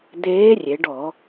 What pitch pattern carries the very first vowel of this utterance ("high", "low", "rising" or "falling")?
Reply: rising